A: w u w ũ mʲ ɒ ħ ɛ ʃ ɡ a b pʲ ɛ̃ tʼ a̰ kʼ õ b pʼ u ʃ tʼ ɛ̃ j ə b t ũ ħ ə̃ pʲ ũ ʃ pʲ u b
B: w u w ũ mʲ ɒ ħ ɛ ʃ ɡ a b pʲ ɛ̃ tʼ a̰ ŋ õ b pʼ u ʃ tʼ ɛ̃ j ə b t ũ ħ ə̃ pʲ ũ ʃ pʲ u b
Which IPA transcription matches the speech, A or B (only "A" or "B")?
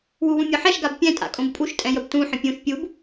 A